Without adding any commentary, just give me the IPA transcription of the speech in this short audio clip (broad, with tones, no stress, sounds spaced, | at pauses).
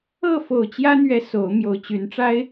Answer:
ɤ˥˨ f o˨˩ ʊ̯ t͡ɕ j ä˦ n̪ ɥ ɛ˨˦ s o˨˦ ʊ̯ m j o˨˩ ʊ̯ t͡ɕ y˨˦ n ʈ͡ʂ a˦ ɪ̯